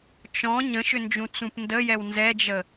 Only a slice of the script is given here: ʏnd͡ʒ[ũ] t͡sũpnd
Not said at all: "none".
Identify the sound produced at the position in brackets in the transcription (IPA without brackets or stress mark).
ũ